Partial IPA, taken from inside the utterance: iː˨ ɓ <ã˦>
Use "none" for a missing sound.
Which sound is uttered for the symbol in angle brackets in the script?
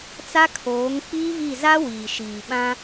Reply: ã˦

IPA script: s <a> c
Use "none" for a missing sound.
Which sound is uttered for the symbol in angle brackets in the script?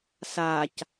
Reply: a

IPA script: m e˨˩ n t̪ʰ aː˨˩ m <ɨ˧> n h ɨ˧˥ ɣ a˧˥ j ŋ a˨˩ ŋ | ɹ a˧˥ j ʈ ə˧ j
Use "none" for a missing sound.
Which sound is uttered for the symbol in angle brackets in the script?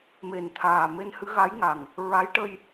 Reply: e˧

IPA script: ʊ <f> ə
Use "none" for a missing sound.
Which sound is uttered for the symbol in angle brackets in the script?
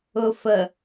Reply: f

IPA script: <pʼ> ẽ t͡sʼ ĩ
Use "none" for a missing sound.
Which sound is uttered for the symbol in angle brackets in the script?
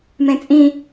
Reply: m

